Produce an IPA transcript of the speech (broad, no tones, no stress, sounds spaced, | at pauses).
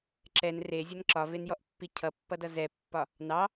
ǁ ɛ n r e zʲ ʌ n ǁ ɒ v e n j ɔ ʔ pː i cʰ ʌ pː ʌ d ʌ z ɛ pː ɒ | n ɑ